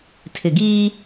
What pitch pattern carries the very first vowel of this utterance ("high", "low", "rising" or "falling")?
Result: low